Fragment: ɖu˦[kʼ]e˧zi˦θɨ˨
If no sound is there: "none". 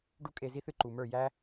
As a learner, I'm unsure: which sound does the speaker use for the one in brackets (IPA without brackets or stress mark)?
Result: kʼ